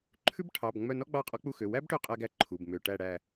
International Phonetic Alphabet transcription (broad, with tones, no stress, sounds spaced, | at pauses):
ǃʰ ʉ˥ b ʈʰ ɑ˩˧˩ b ŋ͡m œ˦˨ n ɔ˥ ɡ͡b ɑ˦˨ qʼ ɔ˧˥ k͡p u˦˨ x ø˩˧˩ w æ˥ b ʈ ø˦˨ qʼ æ˥ ɡ æ˥ ǃʰ u˩˧˩ b m ø˩˧˩ ʈ æ˦˨ ɽ æ˦˨